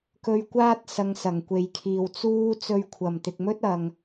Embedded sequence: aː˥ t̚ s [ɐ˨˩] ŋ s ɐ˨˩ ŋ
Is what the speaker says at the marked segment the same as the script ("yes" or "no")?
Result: no